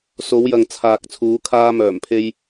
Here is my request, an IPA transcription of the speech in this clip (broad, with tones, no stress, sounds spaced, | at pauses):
s o˨˧ w j ɐ˨ ŋ t͡sʰ aː˨ k̚ t͡sʰ uː˨˧ kʰ aː˧ m œː˨˩ m pʰ e˧ j